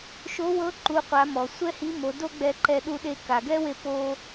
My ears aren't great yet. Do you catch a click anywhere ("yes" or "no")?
yes